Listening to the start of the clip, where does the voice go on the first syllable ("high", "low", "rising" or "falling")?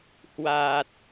low